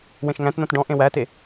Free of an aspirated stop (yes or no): yes